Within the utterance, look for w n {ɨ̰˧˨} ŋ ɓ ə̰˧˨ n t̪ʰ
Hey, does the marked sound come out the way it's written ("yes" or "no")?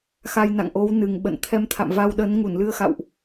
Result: no